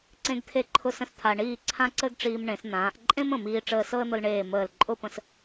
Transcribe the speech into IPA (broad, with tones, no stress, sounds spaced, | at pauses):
ǀ ẽ˥ ɡ t̪ʰ e˥˧ ǃʰ ʊ˥ s ə̃˥ s t̪ʰ a˧ ɳ iː˥˧ ǀʰ ã˥ ǀ ə˥ ɡ ʈ͡ʂ iː˧ m ɳ ẽ˩˧ s n̪ ãː˩˧ ʔ ǃʼ ẽ˥ m ə̃˧˩ m iː˧ ʈ͡ʂ əː˧ s ɤ˥ ə̯ n̪ ʊ˧ l ɳ eː˧˩ m əː˧˩ l ǃʼ ʊ˥˧ p ə̃˧ s